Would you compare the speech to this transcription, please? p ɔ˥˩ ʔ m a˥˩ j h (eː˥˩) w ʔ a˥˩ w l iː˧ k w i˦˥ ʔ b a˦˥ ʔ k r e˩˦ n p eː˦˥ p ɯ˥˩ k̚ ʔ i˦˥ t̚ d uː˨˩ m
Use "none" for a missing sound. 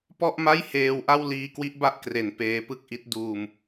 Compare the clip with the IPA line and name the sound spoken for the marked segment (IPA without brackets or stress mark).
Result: eː˧